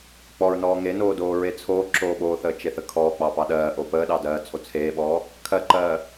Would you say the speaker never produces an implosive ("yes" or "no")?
no